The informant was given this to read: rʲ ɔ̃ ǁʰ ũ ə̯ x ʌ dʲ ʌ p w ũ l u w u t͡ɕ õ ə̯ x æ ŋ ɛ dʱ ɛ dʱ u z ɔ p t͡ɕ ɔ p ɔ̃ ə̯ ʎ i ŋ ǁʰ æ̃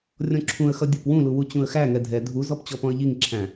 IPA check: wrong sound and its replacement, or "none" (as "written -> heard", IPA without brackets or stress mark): õ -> ũ